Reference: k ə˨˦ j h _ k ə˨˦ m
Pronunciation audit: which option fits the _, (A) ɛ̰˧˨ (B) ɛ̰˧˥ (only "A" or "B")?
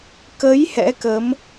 B